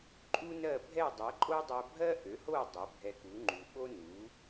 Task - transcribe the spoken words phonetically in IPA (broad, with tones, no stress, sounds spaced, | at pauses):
ǃʼ u˥ n ɜ˥˩ bʱ ɛ˥˩ dˤ ɛ˩˥ ǃʼ o˥ dˤ ɜ˧ bʱ ɜ˥ ʔ ø˩˥ h o˥˩ dˤ ø˩˥ bʱ ɛ˧ k u˩˥ ŋ͡ǃ u˩ ɓ o˥ n u˩˥